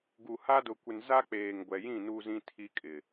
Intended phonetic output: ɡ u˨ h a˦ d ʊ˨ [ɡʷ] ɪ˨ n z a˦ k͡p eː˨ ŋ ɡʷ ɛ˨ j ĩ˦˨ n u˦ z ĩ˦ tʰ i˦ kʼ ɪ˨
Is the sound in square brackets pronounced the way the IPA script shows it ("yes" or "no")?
no